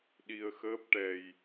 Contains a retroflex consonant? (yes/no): yes